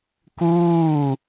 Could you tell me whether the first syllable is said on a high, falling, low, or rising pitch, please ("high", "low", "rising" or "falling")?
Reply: falling